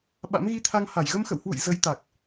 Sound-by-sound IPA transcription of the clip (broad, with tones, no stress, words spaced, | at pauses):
ɓa̰˧˥mɣi˧t̪ʰa˧ŋ ha˧˩jɣə˧m xə̰˧˨whwṵ˧˨j zə˨˦j t̪a˨˩k̚